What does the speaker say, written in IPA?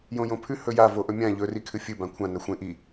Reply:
j õ j õ pʰ ʉ h ɵ j a v o ʔ ɵ mʲ ã ʎ ɵ r i kʰ ɨ fʲ ɨ b ã kʷʰ ã n ɐ xʷ ẽ ʔ i

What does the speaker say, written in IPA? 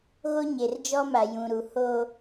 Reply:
ɣ o˦ ɲ e˨ r d͡ʒ ɔ˦ m a˨ j ũ˨ ɾ u˨ h o˦

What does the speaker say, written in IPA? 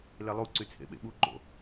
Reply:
l e lˠ u ǀ y t͡sʰ ḛ ɓ ḛ ɓ u ǃ o̰

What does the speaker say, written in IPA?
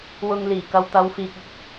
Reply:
w ʊ˧ ŋ l iː˨˩ k ɐ˧ w t̪ ɐ˨˧ w f iː˨ k̚ ɪ˨ k̚

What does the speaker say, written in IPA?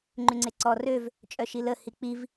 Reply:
ŋ͡ǃ y ŋ͡ǀ e ǀ ɔ r ø v | t͡ʃʼ œ ʃ i l ə h i k͡p i v

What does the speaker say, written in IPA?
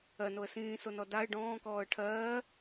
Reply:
ɜ n o ə̯ s ĩː s o n ɔ d a ɪ̯ ɖ ɔ̃ː k ɔː ə̯ ʈʰ ɜː

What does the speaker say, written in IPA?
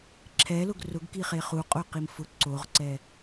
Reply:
ǁʰ ɛ l ʊ ɡ r ʊ ɡ k i χ e χ u qʼ o q i m f ʊ ǀ o ʁ ǀ ɛ

